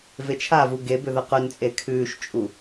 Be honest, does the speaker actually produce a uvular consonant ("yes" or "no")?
yes